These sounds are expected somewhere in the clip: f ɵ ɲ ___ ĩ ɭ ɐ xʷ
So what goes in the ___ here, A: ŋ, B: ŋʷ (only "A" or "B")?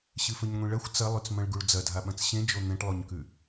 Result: B